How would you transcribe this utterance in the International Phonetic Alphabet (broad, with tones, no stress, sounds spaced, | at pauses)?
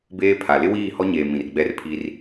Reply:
b eː˦ pʰ a˨ l ɪ˦ w iː˦˨ h ɔ˦ ɲ eː˨ m ĩ˨ r ɡ͡b ɛ˦ r pʰ i˦ r